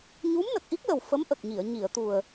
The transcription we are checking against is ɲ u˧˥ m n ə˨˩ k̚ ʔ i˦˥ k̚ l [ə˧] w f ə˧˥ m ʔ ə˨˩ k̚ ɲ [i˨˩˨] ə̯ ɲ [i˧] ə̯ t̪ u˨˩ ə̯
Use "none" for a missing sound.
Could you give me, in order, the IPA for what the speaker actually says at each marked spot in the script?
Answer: ə˨˩, i˨˩˨, i˨˩˨

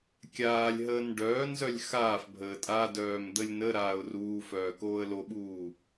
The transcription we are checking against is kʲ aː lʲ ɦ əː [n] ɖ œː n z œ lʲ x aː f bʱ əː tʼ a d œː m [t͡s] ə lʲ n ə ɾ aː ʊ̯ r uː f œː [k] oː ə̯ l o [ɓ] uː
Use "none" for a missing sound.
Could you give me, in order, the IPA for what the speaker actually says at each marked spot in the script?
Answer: n, d̪, k, ɓ

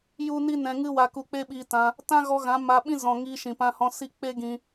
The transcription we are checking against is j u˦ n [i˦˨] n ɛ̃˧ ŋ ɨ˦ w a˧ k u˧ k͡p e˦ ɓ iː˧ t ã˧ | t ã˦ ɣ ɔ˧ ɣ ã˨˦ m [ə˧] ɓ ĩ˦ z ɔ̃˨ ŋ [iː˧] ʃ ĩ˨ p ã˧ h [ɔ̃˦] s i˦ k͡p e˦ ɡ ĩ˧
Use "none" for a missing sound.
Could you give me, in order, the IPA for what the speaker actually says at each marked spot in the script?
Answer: i˦, a˧, iː˧, ɔ̃˧

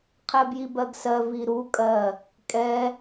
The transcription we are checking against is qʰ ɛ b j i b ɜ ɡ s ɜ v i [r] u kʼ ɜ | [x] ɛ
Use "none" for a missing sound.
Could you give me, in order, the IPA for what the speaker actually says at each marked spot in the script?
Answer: ɾ, kʼ

